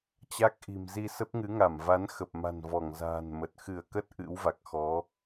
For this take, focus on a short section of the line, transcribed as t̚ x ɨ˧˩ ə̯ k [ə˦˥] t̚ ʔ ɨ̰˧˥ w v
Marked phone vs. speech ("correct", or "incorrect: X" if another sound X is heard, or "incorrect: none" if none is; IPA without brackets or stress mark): correct